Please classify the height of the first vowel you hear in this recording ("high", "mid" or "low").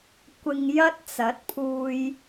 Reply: high